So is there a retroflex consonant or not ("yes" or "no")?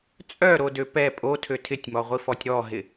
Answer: no